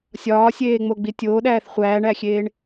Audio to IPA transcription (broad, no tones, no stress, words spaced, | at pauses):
sʲɒːsʲeːŋ͡moɡ͡bi tʲoːɗæːθ χʷæːɳæxʲeːɳ